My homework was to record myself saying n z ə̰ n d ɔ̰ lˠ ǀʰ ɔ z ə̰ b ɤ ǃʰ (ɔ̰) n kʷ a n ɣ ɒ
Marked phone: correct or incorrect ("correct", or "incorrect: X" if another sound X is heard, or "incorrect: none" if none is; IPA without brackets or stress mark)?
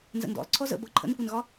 incorrect: ə̰